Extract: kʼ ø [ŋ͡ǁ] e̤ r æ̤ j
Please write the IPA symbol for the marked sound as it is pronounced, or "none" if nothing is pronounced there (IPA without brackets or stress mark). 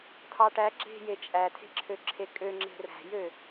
ŋ͡ǁ